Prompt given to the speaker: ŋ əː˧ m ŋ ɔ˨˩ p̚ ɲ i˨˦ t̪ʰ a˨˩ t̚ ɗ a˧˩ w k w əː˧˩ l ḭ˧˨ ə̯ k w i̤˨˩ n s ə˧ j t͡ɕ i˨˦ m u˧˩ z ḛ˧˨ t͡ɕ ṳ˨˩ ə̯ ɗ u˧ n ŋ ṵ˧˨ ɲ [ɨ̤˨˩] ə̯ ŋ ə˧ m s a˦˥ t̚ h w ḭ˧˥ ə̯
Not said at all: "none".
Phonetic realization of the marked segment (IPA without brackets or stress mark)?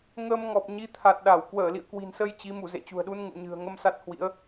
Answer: ɨ̤˨˩